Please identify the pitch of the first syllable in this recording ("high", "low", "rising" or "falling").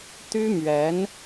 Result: high